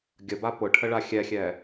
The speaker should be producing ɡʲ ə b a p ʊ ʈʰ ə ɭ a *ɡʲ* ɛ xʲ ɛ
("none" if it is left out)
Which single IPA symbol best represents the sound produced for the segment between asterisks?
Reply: xʲ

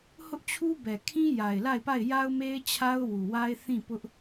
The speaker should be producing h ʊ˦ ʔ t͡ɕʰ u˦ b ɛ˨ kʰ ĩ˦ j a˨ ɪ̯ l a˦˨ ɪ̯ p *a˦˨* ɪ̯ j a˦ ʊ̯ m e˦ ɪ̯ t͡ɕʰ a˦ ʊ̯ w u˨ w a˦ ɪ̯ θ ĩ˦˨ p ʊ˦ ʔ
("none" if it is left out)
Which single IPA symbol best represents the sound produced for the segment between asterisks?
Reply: a˦˨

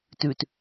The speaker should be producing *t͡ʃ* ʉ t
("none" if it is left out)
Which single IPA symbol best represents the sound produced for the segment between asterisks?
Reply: t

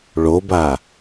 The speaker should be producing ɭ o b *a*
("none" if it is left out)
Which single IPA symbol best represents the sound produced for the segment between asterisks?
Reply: a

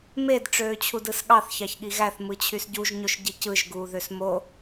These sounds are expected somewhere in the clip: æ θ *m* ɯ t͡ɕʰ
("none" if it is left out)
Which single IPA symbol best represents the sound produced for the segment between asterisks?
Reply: m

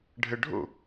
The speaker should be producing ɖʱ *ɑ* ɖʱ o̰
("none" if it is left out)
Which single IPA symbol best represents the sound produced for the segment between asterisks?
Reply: ə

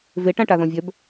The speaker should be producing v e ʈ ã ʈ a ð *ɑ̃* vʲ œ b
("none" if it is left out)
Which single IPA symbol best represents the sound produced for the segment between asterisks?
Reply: ɔ̃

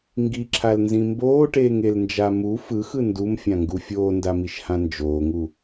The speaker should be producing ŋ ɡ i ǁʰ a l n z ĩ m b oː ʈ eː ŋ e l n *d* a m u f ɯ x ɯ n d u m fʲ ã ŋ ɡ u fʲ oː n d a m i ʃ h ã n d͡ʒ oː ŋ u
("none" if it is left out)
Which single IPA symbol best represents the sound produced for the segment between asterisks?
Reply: d͡ʒ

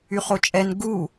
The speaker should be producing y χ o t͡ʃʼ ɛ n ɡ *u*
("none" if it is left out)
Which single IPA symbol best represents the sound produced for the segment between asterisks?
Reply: u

